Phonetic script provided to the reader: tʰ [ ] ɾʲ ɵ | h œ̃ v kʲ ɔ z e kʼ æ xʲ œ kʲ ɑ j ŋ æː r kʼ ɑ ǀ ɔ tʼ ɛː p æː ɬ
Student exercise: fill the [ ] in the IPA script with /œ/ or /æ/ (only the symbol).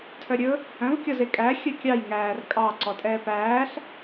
œ